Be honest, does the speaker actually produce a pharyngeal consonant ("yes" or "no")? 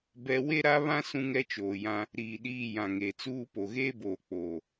no